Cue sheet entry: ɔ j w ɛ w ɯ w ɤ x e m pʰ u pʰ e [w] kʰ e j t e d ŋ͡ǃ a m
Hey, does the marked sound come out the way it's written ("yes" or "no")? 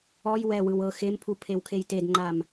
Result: yes